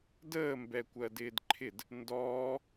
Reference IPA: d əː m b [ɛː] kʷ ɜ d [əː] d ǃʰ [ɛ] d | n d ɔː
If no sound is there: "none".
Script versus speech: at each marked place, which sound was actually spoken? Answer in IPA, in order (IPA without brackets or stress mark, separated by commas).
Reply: ɛ, ɪː, ɪ